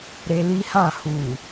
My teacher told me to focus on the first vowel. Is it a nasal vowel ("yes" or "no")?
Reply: no